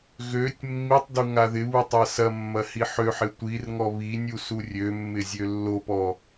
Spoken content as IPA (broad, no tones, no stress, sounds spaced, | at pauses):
ɣ ø tʲ mː i tˤ d u ŋ a ð ɪ β u tˤ a s ɐ mː ɐ h i ħ ø ħ ɪ tʷ i r ŋ ɔ β i nʲ u s u rʲ ø mː ɪ zʲ ø lː o p ɔ